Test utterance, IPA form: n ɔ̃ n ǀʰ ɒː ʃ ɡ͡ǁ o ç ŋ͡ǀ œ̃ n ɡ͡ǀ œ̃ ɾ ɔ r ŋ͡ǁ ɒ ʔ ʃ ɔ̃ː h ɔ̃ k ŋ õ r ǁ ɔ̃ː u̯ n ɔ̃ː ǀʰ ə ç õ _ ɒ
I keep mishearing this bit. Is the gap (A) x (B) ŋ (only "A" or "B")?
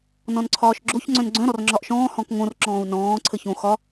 A